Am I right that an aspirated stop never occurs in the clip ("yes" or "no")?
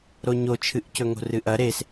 no